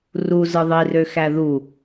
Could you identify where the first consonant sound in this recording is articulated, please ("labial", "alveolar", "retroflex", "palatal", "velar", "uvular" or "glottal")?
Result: alveolar